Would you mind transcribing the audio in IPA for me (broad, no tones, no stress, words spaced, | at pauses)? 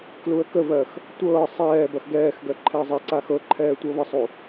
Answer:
kluə̯kəvɜx | tʷɤː sˤɛːbɐx ɡɛːxɡɜ ǃʰɛə̯zˤɛǀa xɤǃʰɛː tʷɤβəsˤu